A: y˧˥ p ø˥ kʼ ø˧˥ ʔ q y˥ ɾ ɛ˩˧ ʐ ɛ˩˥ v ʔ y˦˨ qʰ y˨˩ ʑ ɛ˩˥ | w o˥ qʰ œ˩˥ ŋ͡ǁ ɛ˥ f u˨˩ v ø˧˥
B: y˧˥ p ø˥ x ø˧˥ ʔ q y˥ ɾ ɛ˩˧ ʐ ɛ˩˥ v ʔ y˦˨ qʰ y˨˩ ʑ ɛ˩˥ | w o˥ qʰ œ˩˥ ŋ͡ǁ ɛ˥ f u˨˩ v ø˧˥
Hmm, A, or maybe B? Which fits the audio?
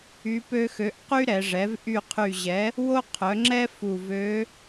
B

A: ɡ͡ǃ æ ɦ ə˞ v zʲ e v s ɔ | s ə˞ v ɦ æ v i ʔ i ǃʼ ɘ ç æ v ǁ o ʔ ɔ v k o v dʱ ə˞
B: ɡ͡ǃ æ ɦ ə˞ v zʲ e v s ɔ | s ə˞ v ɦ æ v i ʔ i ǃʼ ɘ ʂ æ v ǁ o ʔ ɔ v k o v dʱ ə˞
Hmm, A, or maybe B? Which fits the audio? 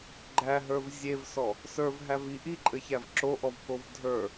A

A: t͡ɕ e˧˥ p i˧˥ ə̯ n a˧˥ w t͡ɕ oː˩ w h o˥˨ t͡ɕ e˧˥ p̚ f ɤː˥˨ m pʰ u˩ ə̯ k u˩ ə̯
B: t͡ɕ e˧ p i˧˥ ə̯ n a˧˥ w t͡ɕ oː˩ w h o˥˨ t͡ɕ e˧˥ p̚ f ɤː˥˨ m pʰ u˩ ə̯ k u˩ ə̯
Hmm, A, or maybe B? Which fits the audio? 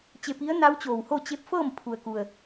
B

